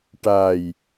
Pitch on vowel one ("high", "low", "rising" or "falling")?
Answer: low